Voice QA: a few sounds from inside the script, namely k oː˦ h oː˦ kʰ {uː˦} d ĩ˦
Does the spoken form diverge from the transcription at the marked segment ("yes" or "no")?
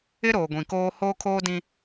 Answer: yes